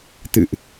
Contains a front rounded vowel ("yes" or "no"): no